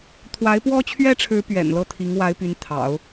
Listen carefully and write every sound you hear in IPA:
t̪ʰwa˧˥ɪ̯pwɔ˥t͡ɕʰɥɛ˥ʈ͡ʂʰɻ̩˧˥ pɥɛ̰˨˩nlɤ˥˩t̪ʰi˧˥ŋ wa˧˥ɪ̯ py˧˥nt̪ʰɑ̰˨˩˦ʊ̯

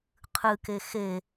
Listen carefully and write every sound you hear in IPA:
qʰɨke xe

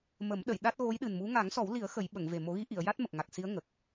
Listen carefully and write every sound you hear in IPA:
mə˨˩˦mɗə˨˩˨j ɗa˦˥t̚ ɣo˧˥jɗɨ˨˩nmu˧˥ ŋa˨˩˦ŋsɔ˨˩˦wli˨˩˦ə̯ xə˨˩˦j ɓə˨˩˨ŋve˨˩ mo˨˩˦ɣi˧˥ʔi˨˩˨ə̯ ja˦˥t̚mə˨˩k̚ ŋa˨˩k̚si˧˥ə̯ ŋə˨˩k̚

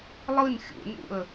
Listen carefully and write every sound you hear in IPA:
lˠɯn xʲṵnṵə̯

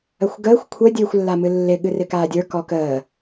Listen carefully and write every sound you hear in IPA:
əxʷɡəːxʷ kʷʰə dʲɨːxʷlːamɨlːɪ ɠɨrɪkaːdʲə˞ kɔkəː

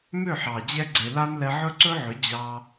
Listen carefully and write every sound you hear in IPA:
mʏ˦˨ ħɑ˨ d͡ʑɛ˧ ɡ͡ǀe˨la˦nlɛ˧ ʕɵ˦ǀɵ˦ʕʏ˨˦ d͡ʑɑ˧

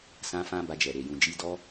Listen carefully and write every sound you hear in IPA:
sã˦fã˦ ba˧d͡ʒɛ˨ ɾe˨ jũ˨d͡ʒi˧ dɔ˦

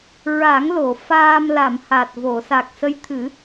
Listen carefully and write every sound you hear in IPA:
ɹa˨˩˦ŋlo˨˩˨ faː˧mla˨˩˨m ha˨˩t̚vo˨˩˨ sa˨˩k̚sə˧˥j t̪ʰɨ˨˩˦

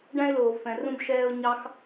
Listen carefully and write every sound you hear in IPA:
ɖæ̃˧ɪ̯loː˩vfɛ̃˩ rũ˧bʃɛː˧ʊ̯ ɲɑ˧x

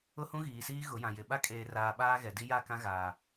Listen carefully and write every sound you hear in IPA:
ʊ˦hũ˦ɣiː˨siː˦ ɣʊ˨˦jã˨ jɪ˨ ɓa˦kʼeː˨raː˨ ɓaː˦ɣɛ˨di˦ ja˦˨kã˦ɣaː˨

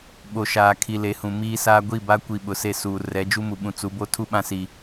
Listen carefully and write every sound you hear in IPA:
ɓo˨ʃaː˨ kʰi˨le˨˦hũ˨ miː˦saː˦ ɡʷi˦˨ba˦kʷi˨ ɓʊ˨se˦˨suː˨ rɛ˨˦d͡ʒu˦mu˨ɓũ˨ t͡su˨˦bo˦ tʰu˦ ɓã˦si˨

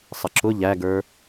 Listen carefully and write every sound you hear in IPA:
sˤəǁʊ ʎæɡə˞

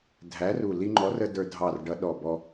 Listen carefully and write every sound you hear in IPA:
dʱæ˨˥ru˧˩ li˧ŋ͡ǃɔ˨˥rə˧ də˞˧dʱɑ˧˩rɖʌ˨˥ ɗɔ˧˩ bɔ˧

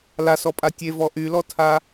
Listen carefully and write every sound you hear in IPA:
lasɔpʼa tʲevɔ ʔylɔtʰa

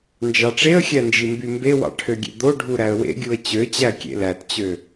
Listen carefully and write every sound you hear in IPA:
nd͡ʒɑʈ͡ʂeə̯xʲæ nd͡ʒimbymbewɑ̰ ʈʰøɡʲḛd̪oɖʱu ɾæə̯wḛɡʲuə̯ t͡ɕøt͡ɕæ kʲḛlætt͡ɕø

